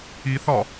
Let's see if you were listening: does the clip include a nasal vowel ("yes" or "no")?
no